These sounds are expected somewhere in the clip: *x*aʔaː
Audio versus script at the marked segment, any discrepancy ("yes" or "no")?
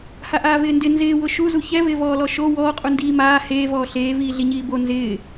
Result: yes